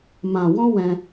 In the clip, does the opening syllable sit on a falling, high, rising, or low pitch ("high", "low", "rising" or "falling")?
low